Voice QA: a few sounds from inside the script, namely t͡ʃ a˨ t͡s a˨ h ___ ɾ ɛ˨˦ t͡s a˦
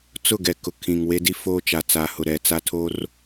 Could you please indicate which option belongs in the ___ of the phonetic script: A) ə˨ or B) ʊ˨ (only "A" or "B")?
B